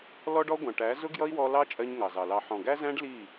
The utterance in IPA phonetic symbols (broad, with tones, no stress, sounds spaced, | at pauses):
l ɔ˦ ɖ ɔ˦ ɡʷ ɑ̃˨ ʈ æ˨˦ z ʊ˦ ɡ j ʌ˦ i̯ w ɔ˧ l ɑ˦ t͡ʃʼ ɜ˦ ɲ ŋ ɑ˨ z ɑ˨ l ɑ˧ ħ ɔ̃˨ ɡ æ˦ z æ̃˦ ɖ l i˦˨